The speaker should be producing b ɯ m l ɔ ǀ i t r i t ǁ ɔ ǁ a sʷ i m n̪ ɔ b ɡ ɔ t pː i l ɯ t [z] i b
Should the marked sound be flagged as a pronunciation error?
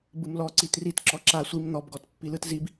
no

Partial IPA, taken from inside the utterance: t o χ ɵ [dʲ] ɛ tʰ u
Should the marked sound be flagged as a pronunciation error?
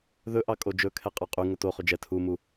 yes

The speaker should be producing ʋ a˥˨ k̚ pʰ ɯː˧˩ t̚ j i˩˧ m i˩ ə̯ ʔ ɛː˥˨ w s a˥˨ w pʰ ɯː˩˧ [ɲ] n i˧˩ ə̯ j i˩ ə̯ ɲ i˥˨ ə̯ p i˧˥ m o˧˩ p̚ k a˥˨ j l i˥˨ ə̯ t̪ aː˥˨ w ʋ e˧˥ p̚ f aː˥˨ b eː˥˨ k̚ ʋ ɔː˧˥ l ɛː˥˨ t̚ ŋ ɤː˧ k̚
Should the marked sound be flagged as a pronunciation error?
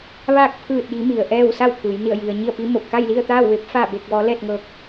yes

